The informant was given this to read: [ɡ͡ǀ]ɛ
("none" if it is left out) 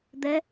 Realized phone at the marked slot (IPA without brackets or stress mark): d̪